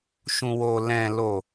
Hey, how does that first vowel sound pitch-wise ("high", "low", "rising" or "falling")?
low